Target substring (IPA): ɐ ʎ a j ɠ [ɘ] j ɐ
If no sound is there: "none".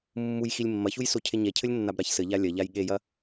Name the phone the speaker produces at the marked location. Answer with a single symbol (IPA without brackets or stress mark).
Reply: e